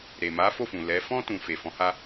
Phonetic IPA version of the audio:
ɾ e˨ m a˨˦ f o˦˨ f ũ˨ l ɛ˨˦ f ɔ̃˦ t ũ˧ f e˨ f ɔ̃˨˦ h a˦

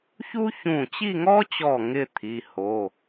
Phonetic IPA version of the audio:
ç u˥ ç ũ˧˩ t͡ɕ i˥˧ ŋ ɔ˥ t͡ɕ ɔ˧˩ ŋ ɪ˥˧ t̪ʰ i˩˧˩ h o˩˧˩

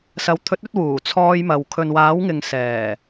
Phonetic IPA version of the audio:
s ɐ˨˧ w t̪ʰ ɵ˨˥ t̚ ɵ˨˥ t̚ w uː˨˩ t͡sʰ ɔː˧ j m ɐ˨ w kʰ ɵ˨ n w aː˨˥ w ŋ ɪ˨ ŋ s ɛː˨˩

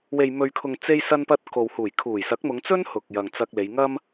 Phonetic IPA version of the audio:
w e˨ j m ɵ˨ ɥ kʰ ʊ˨ ŋ t͡s e˧ j s ɐ˧ n p ɐ˧ t̚ k o˨ w h uː˨˩ j kʰ uː˨˩ j s ɐ˨˥ k̚ m ʊ˨˧ ŋ t͡s ɵ˥ n h ʊ˨ k̚ j ɐ˨ ŋ t͡s ɐ˧ k̚ l e˨˧ j ŋ ɐ˥ m

